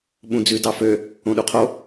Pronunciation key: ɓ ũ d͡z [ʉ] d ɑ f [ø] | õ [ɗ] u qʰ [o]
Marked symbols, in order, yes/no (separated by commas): yes, yes, yes, yes